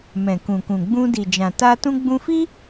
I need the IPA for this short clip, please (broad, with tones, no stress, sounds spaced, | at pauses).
m ɛ̃˨ k ũ˨ k ũ˨ ɡ͡b ũ˧ d i˨ d͡ʒ ã˨ t a˧ t ũ˧ ɡ͡b ũ˧ f i˦